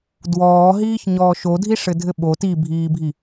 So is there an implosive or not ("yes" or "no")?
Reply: yes